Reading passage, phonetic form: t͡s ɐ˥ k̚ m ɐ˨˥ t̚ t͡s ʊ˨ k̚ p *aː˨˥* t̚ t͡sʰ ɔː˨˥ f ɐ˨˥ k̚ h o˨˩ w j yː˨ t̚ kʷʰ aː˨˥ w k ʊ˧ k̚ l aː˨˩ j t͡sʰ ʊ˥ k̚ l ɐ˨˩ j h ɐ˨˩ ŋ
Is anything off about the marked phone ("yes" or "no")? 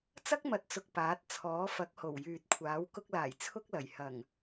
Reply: no